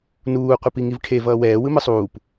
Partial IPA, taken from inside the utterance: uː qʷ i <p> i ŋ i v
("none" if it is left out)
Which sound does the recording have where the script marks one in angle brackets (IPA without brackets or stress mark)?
p